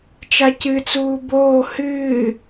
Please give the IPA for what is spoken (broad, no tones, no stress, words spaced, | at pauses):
t͡ʃacɨt͡suː boː hɨː